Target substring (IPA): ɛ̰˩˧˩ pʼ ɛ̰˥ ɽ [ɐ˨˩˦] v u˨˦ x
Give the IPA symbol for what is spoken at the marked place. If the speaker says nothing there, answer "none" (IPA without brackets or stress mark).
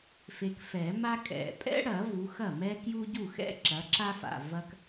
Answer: ɐ˨˩˦